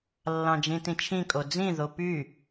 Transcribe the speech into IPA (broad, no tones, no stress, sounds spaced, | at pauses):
lː ɑ̃ d͡ʒ ĩ t ĩ t͡ʃʰ ĩ kʼ o d͡z ĩ ð o p y